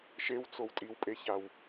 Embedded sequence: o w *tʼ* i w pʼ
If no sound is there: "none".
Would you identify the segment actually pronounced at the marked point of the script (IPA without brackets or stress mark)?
tʼ